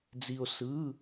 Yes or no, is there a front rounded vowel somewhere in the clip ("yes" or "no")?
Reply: no